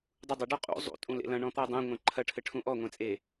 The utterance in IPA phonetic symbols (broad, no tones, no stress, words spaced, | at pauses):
dˤudˤɐ ɖɔqʼṵ zˤṵ tʼũlḛlɐ̃ ɳɔ̃t̪ɔdˤẽ ŋʷẽǃʰɐ ʈʰɘʈʰũʔɔ ŋʷẽt͡sʼe